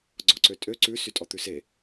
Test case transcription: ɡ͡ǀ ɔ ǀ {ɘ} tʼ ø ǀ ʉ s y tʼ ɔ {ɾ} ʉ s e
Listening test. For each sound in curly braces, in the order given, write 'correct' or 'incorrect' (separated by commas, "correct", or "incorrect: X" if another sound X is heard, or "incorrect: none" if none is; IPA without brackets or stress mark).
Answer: incorrect: ø, incorrect: t̪